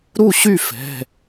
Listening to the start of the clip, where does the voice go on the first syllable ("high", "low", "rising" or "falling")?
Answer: falling